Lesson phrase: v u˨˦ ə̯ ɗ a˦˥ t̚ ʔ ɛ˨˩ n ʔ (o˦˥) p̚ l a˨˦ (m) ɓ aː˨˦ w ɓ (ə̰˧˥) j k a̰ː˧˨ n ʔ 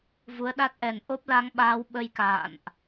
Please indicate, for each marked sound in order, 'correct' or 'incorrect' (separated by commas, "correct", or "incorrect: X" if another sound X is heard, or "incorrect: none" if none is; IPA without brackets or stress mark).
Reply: correct, incorrect: ŋ, incorrect: ə˧